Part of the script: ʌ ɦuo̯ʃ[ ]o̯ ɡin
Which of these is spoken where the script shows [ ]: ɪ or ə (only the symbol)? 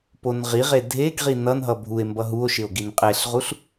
ɪ